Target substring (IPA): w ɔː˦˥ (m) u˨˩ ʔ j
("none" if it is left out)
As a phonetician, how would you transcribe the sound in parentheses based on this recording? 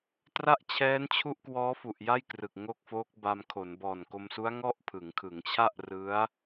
f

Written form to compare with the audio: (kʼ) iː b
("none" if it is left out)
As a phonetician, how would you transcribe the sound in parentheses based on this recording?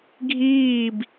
ɡʱ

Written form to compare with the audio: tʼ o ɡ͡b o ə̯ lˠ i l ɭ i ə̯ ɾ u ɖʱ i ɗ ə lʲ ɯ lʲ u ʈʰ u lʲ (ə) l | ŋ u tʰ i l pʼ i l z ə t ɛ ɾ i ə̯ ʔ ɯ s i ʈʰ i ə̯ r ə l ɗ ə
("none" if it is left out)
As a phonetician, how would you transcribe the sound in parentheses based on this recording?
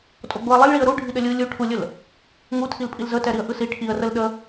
ə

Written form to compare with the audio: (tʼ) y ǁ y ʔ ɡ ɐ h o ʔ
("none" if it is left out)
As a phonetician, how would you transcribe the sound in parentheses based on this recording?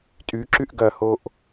tʼ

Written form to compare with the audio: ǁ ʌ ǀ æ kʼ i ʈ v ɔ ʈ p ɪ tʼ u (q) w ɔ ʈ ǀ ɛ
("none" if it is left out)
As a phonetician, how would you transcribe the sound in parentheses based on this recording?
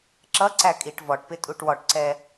ʈ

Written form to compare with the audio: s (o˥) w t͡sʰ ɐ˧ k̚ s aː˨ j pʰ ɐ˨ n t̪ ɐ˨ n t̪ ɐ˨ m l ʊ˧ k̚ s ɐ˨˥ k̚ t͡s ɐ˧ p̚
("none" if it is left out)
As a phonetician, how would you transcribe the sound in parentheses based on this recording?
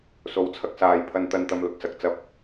o˨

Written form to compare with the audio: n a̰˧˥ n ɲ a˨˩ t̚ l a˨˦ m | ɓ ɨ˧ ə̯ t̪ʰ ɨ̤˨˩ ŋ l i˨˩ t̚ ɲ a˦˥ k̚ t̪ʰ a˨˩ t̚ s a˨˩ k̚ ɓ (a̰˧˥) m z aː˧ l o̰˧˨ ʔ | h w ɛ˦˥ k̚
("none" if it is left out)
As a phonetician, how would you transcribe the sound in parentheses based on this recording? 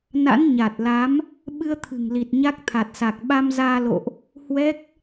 a˧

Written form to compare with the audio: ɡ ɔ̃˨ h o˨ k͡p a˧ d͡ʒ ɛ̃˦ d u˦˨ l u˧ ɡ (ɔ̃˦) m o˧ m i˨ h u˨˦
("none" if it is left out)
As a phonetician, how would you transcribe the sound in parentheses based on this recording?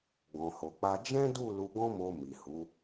ɔ̃˦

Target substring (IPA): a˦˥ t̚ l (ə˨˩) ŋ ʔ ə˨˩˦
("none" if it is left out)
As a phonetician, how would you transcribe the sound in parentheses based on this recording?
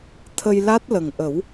ə˨˩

